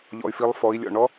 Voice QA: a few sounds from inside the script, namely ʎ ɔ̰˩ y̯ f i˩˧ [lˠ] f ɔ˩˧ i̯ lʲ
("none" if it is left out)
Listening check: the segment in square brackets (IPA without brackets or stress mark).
lˠ